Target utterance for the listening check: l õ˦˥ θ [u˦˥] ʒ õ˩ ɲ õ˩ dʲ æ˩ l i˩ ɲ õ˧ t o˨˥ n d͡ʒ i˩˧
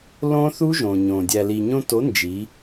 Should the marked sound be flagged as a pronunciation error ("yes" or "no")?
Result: no